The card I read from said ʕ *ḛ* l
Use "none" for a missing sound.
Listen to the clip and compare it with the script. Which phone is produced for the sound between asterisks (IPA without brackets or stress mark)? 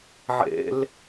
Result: ḛ